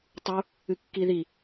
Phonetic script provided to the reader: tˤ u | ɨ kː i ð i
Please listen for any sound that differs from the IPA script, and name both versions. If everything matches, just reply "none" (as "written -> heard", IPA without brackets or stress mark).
none